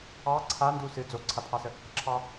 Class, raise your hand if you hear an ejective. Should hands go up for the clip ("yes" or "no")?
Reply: no